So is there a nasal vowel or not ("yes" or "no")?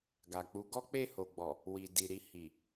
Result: no